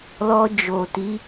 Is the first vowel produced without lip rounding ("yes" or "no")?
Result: no